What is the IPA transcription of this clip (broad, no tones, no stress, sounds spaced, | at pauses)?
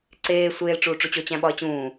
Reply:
ǀ eː sʷ eː l ʈ͡ʂ uː ʈ͡ʂ u t͡ɕ o t͡ɕ æ̃ ɓ ɒ ə̯ t͡ɕ ũː